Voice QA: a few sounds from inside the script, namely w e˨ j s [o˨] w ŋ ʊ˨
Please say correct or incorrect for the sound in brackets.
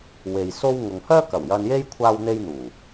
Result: incorrect